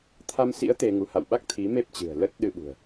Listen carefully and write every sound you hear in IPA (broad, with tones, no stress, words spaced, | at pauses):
t̪ʰa˧msḭ˧˥ə̯ t̪e˧ŋu˨˦ ha̰˧˨wɓa˦˥k̚ t̪ʰi˨˦me˦˥p̚t͡ɕɨ̤˨˩ə̯ lə˦˥t̚ɗɨ˧ɓṳ˨˩ə̯